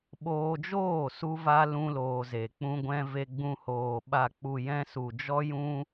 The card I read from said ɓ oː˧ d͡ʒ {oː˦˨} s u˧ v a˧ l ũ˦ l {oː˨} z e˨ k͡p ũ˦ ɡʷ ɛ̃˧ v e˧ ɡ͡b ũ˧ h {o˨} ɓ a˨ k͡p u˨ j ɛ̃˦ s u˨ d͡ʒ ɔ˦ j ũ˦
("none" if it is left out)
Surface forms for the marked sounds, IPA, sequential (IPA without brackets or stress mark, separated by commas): oː˦˨, oː˧, oː˨